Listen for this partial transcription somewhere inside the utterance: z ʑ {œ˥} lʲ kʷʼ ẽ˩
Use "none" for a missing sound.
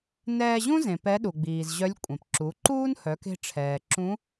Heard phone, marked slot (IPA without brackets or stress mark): œ˧˥